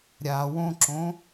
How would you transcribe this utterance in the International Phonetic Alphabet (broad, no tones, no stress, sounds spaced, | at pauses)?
ɾʲ a w õ ǁ õ